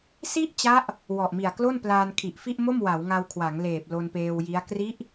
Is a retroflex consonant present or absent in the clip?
absent